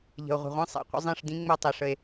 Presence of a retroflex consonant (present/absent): present